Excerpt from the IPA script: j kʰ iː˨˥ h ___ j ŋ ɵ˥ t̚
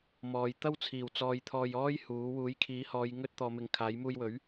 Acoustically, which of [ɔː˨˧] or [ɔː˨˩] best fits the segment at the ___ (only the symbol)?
ɔː˨˧